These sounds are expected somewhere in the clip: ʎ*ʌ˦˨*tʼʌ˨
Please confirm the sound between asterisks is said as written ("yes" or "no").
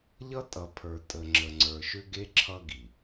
no